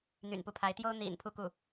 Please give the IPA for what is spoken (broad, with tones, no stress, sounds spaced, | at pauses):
n̪ y̰˨˩ n p u˧˥ pʰ a˧˥ ɪ̯ t̪ j o˥ ʊ̯ n̪ ḭ˨˩ n pʰ u˥˧ k u˥˩